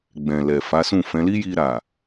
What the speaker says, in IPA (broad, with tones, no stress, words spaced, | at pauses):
ɡ͡bɛ̃˨lɛ˨ fa˨˦sũ˦˨fɛ̃˨˦ li˦ji˧ɾa˨